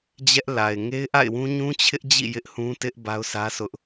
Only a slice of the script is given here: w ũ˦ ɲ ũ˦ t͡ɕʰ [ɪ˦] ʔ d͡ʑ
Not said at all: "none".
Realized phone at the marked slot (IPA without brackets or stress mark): ɪ˦